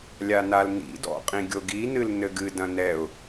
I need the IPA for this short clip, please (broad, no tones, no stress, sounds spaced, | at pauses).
lʲ a n a l n ḭ d ɔ̰ qʼ ĩ ɡʲ o ɡ i n ɨ l n ɘ ɡ ɨ d ɐ̃ n ɛ ʊ̯